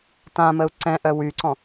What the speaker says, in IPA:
tãməu̯ ǀɛ̃ʔœ wyǀɔ̃

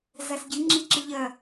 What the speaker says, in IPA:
zasɟɨ ŋ͡ǁiǁɨʎɐ

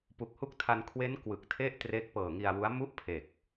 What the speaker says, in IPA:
pu˨˩k̚hu˦˥k̚tʰa˧nkʰwe˦˥n kwɯ˨˩k̚tʰe˥˩ʔtre˦˥k̚ pɤː˨˩ŋi˧a̯wu˦˥a̯ mu˥˩ʔpʰe˨˩k̚

